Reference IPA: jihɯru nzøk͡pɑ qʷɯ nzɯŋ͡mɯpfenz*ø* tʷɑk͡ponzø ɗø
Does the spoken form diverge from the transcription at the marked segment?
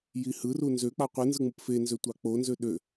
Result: no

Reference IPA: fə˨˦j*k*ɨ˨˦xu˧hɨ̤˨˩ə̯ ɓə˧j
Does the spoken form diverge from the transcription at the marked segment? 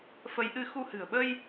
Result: yes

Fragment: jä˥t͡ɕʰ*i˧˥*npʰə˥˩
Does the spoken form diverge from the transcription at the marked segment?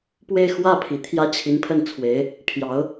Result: no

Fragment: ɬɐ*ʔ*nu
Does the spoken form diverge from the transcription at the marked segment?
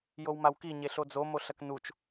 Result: yes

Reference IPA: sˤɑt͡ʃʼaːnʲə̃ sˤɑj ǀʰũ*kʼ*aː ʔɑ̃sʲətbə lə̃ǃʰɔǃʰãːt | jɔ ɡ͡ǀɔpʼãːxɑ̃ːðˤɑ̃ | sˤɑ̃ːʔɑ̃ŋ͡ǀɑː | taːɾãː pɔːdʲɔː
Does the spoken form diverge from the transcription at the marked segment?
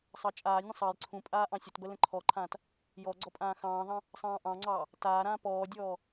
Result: yes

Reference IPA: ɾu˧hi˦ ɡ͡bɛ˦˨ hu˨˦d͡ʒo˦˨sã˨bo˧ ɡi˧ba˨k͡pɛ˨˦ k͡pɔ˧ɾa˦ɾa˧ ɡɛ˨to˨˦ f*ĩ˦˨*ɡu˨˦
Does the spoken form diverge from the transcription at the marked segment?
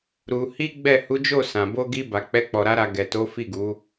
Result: yes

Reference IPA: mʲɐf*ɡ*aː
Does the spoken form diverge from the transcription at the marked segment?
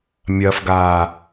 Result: no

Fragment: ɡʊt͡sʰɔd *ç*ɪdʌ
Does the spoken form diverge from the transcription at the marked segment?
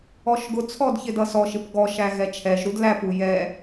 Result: no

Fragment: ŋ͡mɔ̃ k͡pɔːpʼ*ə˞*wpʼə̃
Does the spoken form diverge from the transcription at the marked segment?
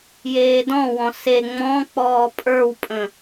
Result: no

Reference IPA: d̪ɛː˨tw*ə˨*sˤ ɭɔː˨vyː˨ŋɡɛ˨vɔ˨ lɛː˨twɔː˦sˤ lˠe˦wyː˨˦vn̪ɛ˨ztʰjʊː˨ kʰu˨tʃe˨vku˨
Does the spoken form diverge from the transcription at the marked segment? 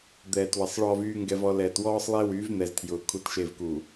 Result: no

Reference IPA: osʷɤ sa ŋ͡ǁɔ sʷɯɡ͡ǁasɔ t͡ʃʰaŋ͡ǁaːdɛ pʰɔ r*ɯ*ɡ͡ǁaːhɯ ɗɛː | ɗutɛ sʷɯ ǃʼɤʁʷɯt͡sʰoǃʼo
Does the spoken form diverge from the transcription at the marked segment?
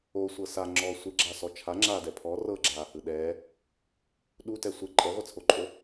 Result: yes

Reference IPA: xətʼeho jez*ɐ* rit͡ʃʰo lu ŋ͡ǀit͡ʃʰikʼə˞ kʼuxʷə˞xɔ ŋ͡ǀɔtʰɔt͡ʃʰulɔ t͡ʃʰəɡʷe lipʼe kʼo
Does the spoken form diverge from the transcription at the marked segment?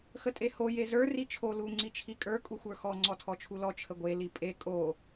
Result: yes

